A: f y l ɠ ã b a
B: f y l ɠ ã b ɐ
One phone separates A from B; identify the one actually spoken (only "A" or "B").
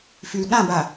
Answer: A